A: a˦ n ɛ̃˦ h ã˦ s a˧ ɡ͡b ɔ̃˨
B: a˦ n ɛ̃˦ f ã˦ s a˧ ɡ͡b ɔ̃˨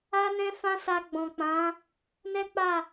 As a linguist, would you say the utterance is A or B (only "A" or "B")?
B